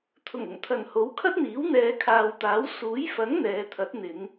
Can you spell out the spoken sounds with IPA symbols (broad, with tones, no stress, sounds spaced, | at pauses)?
t̪ʰ ʊ˨˩ ŋ ʊ˨˩ ŋ t̪ʰ ɐ˨˩ n h o˨˥ w kʰ ɐ˥ t̚ n̪ iː˨˥ w n̪ ɛː˨˧ kʰ aː˨ w t̪ aː˨˥ w s uː˨˥ j f ɐ˨˥ ŋ n̪ ɛː˨˧ t̪ʰ ɐ˨˥ t̚ n̪ ɪ˨˧ ŋ